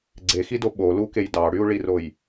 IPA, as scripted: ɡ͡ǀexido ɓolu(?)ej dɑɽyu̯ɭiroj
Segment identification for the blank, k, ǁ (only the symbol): k